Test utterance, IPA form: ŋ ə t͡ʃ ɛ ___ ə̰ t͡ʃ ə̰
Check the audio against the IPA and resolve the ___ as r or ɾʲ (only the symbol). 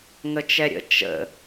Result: ɾʲ